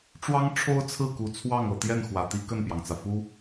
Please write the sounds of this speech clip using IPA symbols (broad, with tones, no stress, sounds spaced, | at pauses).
ʈ͡ʂ w ɑ˥ ŋ ʈ͡ʂʰ o˥ ʊ̯ t͡sʰ ɹ̩˥˩ k u˨˩ t͡sʰ w ɑ˥˩ ŋ ɤ˨˩ t̪ j ɛ˥˩ n x w ä˨˩ t̪ i˥ k ə˥˩ n p j ɑ˩ ŋ t͡s ä˩ f u˥